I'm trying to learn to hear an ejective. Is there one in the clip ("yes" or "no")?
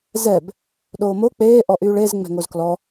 no